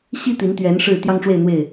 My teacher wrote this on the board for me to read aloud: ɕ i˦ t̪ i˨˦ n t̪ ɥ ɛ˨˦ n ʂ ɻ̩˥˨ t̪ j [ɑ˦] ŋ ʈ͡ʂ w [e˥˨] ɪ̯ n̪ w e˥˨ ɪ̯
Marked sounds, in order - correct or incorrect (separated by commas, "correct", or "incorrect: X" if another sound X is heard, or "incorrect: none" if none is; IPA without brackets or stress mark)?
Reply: correct, correct